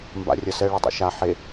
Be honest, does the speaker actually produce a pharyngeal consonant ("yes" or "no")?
yes